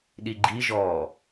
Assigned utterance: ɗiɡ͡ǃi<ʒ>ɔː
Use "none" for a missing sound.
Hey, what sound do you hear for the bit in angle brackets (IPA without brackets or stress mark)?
ʒ